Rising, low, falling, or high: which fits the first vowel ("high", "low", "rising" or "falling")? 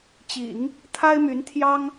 low